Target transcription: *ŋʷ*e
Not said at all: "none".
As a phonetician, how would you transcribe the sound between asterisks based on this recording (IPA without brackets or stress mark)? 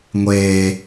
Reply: ŋʷ